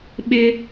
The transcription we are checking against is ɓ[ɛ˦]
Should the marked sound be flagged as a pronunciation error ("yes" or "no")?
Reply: yes